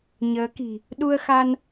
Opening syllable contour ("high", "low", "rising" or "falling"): rising